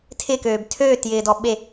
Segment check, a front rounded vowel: present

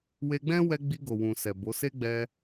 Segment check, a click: absent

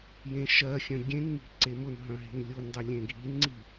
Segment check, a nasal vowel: present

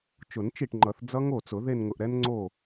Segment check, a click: present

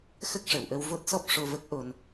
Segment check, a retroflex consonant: present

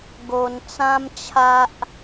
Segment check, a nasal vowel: present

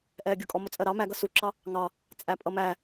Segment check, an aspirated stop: absent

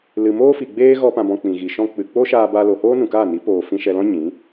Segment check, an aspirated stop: absent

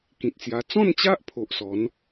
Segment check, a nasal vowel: present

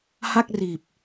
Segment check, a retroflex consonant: absent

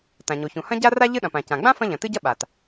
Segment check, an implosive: present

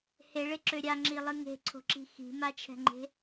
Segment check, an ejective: absent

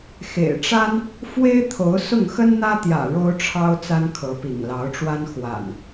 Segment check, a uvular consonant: absent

